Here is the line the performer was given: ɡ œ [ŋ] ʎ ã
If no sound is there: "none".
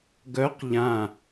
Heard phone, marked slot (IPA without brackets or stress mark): q